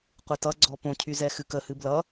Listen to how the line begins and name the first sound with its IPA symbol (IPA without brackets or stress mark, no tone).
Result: qʷ